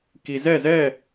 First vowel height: high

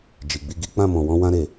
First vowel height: high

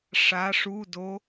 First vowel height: low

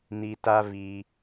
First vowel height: high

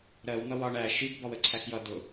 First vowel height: mid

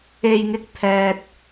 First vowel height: mid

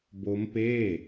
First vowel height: mid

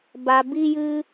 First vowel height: low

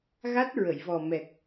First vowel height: low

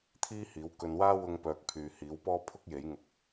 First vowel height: high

